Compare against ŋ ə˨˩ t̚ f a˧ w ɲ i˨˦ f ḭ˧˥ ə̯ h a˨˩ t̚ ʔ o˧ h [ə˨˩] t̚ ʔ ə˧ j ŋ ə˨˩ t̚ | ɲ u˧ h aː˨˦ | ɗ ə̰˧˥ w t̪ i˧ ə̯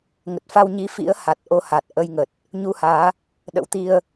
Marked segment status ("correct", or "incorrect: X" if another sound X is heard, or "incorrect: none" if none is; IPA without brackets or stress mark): incorrect: a˨˩